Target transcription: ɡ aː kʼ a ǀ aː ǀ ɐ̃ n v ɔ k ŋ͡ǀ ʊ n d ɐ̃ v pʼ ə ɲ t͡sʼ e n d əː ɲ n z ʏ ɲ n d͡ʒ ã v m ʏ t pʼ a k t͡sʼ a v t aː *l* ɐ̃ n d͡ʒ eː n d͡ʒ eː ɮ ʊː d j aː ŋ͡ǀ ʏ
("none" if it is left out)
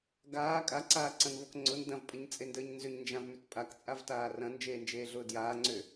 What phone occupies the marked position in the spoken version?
r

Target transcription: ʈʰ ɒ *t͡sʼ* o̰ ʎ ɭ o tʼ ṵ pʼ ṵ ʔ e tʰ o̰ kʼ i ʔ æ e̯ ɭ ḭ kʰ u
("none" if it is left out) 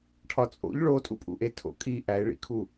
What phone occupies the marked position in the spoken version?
t͡sʼ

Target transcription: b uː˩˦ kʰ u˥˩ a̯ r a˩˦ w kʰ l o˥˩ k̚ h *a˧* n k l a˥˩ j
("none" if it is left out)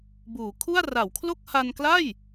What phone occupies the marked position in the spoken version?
a˧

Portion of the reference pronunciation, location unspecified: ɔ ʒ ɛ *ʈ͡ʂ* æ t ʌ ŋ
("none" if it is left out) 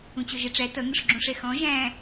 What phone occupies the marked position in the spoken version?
ʈ͡ʂ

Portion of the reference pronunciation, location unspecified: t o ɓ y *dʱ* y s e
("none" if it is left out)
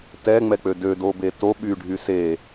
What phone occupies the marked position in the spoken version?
ɖʱ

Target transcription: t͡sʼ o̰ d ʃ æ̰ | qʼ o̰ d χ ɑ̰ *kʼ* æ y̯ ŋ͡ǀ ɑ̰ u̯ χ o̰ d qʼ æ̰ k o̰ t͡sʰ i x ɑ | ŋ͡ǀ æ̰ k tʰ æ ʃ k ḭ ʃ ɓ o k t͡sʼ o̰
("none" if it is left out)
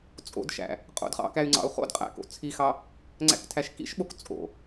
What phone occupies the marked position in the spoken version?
k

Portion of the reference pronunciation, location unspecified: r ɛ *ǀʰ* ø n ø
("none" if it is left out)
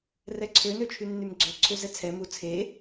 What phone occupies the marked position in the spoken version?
ǀʰ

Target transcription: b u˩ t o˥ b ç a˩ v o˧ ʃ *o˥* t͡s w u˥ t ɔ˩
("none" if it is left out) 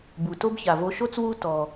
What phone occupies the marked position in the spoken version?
o˥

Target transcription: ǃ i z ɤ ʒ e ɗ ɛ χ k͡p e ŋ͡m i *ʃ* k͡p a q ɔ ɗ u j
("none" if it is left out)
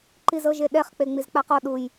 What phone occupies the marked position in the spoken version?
z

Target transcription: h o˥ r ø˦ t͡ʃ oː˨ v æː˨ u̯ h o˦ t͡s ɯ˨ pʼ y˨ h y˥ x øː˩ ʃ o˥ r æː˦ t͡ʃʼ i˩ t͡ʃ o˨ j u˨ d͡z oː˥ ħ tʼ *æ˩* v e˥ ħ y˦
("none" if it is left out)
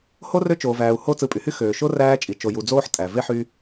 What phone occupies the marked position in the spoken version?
æ˩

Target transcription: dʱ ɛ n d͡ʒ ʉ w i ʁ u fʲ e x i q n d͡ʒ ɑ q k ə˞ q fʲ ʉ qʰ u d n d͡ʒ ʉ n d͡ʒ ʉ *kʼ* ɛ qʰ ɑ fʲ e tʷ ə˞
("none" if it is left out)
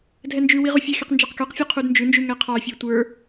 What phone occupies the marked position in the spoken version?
ŋ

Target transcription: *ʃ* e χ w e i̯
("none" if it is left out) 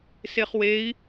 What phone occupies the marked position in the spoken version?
s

